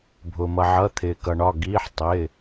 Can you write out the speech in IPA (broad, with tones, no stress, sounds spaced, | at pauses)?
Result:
bʱ ʊː˩ m ʌ˩ ʕ ʌ˩˧˩ t̪ʰ ɪː˩ k ʌ˩ ɳ ɒ˩˧˩ ɡ iː˩˧˩ ħ tˤ ɪː˩˧˩